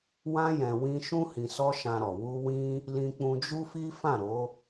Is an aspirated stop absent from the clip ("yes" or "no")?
yes